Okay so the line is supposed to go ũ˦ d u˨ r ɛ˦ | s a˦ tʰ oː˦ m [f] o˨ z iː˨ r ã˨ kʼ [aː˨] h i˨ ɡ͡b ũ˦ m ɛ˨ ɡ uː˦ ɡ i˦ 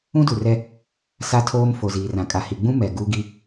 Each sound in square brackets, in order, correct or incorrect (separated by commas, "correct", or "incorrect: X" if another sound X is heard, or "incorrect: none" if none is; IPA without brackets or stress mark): correct, incorrect: a˨